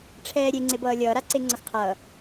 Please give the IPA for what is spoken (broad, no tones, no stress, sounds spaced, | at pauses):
ʈ͡ʂʰ ɛː ɾʲ e ŋ͡ǀ e b ʌː lʲ ʌː ɾ a ǀ e ŋ͡ǀ ʌ x qʰ ʌː